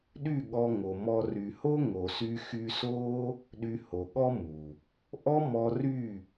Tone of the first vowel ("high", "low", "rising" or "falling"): falling